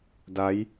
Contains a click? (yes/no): no